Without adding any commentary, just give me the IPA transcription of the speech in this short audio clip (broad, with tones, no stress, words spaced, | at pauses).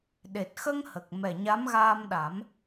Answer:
ɗe˨˩t̚xə˧ŋ hə˨˩k̚mɛ˨˩ ɲa˧˥mɣaː˧mɗa˨˩˦m